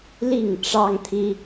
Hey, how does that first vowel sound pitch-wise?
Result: falling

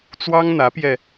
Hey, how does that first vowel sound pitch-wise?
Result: high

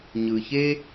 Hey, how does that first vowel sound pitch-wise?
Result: low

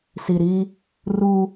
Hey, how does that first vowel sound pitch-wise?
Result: low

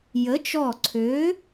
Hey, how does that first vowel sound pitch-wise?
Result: rising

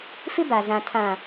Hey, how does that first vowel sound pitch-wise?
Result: high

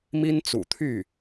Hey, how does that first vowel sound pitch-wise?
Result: high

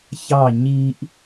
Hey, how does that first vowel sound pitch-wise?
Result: falling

